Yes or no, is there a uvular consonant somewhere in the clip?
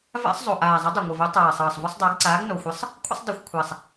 no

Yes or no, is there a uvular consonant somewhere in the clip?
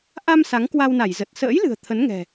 no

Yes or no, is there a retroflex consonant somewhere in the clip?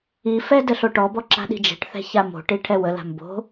yes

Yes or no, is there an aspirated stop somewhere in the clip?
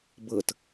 no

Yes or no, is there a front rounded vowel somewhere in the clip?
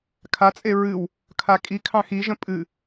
no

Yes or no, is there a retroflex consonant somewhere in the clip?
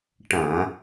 yes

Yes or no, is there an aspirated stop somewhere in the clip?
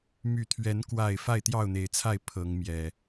yes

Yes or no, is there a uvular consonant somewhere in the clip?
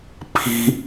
no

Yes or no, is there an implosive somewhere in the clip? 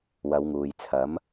no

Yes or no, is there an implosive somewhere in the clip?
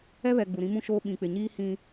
yes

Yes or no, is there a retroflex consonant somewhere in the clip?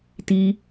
no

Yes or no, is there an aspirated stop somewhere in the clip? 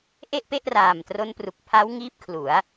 yes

